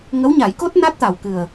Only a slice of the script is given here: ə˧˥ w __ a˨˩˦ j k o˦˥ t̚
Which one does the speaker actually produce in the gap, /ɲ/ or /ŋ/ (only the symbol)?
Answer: ɲ